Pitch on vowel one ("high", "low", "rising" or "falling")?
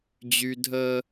high